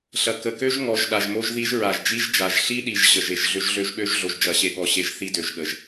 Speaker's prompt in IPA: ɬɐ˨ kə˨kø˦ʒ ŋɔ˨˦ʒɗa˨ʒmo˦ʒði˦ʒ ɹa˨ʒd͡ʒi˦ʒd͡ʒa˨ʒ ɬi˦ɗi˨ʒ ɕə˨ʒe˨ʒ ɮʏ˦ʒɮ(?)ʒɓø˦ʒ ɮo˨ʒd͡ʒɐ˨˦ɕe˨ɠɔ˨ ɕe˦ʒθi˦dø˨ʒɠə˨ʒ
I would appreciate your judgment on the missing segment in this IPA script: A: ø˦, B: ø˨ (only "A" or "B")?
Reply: A